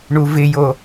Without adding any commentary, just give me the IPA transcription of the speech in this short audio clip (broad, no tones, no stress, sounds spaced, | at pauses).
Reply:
ɳ u v ɪ j o